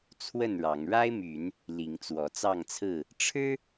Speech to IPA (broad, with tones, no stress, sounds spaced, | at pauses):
t͡sʰ w ə˥˨ n ɻ ɑ˨˦ ŋ ɻ a˦ ɪ̯ m y˨˦ n | l i˨˦ ŋ t͡s w ɔ˨˦ t͡s ɑ˥˨ ŋ t͡sʰ ɹ̩˥˨ | ʈ͡ʂʰ ɻ̩˦